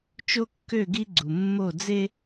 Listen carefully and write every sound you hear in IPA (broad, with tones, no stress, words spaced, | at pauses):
t͡ʃo˦kːø˦˨ɡi˦ ɡ͡ǀu˨mːo˦˨d͡ze˦